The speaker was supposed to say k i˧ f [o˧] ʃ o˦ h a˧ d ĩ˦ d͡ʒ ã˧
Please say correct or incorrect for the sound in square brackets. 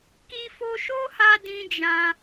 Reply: correct